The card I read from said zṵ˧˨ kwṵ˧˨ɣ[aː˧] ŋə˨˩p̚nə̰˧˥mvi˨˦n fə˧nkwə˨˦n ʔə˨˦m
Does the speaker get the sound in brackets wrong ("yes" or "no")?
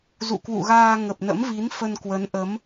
no